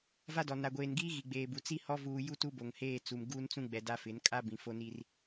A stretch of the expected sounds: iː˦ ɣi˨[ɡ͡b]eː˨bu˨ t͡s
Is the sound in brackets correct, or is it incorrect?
correct